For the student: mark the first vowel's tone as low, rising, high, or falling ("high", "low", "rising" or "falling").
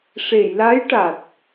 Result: low